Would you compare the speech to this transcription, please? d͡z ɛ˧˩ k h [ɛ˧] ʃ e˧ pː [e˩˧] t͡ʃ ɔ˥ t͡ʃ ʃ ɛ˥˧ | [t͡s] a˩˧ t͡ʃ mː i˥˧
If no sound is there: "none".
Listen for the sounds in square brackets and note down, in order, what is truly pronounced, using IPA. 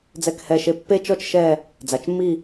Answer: ɛ˧˩, e˥, d͡z

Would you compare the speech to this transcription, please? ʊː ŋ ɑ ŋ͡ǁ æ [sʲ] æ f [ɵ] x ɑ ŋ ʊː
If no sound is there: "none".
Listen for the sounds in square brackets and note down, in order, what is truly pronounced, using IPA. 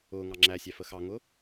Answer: sʲ, ə

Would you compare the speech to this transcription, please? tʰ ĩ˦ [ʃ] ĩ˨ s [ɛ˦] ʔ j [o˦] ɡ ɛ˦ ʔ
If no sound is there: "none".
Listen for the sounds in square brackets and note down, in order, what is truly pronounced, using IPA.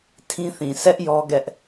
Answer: θ, ɛ˦, ɔ˦

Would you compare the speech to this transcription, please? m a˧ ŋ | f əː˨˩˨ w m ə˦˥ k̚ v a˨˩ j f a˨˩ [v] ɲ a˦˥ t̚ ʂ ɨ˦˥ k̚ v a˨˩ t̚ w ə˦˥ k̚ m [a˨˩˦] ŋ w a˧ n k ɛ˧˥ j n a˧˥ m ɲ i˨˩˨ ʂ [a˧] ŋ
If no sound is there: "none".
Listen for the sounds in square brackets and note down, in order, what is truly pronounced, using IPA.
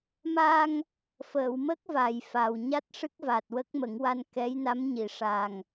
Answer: w, ə˨˩˦, a˨˩

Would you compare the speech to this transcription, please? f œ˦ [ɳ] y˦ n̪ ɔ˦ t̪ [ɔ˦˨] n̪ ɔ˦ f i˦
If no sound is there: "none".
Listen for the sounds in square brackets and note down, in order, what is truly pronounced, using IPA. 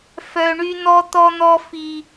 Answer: ɳ, ɔ˦

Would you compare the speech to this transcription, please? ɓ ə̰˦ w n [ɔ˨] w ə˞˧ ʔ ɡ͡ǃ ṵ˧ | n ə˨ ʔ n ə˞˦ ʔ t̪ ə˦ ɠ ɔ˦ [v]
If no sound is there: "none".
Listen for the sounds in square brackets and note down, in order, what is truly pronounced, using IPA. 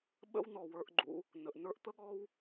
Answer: ɔ˨, w

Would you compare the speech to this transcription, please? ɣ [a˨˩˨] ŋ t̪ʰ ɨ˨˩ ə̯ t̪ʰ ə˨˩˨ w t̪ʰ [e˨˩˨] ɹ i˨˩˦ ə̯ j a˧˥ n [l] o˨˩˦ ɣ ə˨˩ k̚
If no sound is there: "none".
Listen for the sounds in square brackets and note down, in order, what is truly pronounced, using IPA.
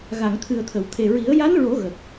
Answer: a˨˩˨, e˨˩, ɹ

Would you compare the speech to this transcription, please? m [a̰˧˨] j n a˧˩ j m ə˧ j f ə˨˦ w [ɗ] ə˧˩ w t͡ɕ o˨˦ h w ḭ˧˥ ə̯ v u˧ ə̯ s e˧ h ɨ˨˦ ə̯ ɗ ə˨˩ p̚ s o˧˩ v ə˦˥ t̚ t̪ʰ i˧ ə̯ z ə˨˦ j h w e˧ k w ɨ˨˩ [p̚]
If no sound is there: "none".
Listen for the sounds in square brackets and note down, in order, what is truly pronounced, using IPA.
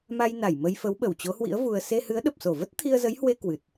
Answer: a˧, ɓ, t̚

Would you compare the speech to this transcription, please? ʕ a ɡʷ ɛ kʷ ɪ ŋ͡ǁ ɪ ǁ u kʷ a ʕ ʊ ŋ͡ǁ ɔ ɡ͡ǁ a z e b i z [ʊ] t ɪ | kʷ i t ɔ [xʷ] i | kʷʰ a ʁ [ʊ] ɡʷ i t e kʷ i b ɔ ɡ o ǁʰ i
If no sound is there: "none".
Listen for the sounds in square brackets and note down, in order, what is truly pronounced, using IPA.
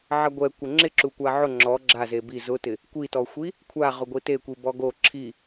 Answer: ʊ, xʷ, ʊ

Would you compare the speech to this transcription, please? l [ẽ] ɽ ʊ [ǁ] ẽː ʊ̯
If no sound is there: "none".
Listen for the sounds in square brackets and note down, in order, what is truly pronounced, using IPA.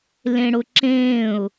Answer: ẽ, ǁ

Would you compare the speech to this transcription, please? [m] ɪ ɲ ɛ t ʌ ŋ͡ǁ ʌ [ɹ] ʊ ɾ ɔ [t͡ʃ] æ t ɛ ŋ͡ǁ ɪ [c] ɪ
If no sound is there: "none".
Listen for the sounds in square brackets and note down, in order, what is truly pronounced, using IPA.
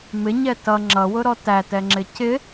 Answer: m, w, t, c

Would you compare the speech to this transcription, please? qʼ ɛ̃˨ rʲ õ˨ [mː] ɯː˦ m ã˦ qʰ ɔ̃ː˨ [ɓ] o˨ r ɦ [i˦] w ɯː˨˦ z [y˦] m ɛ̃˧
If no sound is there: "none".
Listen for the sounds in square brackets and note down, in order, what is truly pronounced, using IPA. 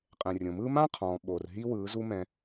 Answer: m, ɓ, i˦, u˦

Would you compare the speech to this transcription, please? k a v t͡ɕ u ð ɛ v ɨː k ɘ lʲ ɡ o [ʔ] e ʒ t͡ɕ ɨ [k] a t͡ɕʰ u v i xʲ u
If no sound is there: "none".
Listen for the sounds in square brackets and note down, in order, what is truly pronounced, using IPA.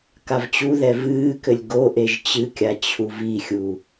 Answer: ʔ, kʲ

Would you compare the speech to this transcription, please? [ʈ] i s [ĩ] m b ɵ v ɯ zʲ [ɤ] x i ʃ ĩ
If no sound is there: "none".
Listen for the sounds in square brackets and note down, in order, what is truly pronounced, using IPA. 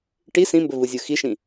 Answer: ʈ, ĩ, ɯ

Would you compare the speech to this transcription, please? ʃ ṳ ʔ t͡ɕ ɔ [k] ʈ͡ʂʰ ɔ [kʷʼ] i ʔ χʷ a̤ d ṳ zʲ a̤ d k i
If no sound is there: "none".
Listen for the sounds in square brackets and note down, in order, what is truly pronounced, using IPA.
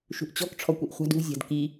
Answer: k, kʷ

